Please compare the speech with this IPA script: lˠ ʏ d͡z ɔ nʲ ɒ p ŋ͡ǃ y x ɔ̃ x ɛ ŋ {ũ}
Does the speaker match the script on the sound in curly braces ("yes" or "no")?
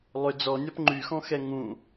yes